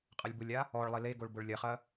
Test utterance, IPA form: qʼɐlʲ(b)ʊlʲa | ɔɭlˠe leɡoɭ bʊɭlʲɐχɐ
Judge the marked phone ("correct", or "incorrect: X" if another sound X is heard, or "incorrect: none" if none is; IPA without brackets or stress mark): correct